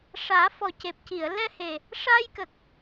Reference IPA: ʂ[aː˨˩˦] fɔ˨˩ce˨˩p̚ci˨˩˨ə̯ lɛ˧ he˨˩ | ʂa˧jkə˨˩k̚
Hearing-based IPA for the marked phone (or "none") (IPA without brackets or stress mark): aː˨˩˦